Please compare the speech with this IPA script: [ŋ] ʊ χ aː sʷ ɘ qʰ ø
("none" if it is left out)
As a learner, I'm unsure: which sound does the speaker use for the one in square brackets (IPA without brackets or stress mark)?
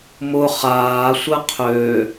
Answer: m